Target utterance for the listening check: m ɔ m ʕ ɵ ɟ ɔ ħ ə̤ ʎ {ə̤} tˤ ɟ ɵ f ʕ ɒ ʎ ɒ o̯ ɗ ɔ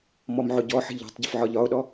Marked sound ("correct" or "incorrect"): incorrect